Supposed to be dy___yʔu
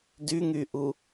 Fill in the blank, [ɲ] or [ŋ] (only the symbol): ŋ